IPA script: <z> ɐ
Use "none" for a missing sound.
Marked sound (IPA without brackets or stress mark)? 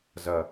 z